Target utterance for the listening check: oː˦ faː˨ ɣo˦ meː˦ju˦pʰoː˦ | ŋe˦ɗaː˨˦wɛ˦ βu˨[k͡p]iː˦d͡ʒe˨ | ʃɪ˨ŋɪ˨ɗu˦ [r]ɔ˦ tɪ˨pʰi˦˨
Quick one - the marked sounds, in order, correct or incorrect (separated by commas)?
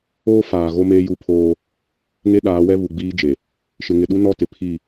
incorrect, incorrect